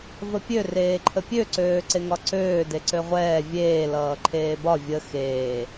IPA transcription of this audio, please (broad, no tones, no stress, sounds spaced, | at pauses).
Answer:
v ə pʲ ø r eː ǃʰ ə pʲ ø ǀ øː ǀ e ŋ ɒ ǀ øː d e ǀ ø ʁʷ ɛː vʲ eː l ʌː ǃʰ eː b ɒ vʲ ə x eː